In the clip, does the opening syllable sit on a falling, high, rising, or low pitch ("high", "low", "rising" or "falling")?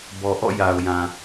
low